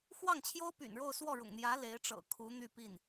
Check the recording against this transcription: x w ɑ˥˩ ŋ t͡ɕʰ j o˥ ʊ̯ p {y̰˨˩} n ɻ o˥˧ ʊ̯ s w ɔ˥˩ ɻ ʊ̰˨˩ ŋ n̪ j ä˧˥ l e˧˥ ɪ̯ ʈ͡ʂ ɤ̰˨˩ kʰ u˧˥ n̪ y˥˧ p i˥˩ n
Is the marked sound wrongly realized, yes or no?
no